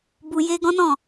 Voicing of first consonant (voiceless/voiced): voiced